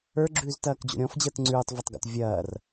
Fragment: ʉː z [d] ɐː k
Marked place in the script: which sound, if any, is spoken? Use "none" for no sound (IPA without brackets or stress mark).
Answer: t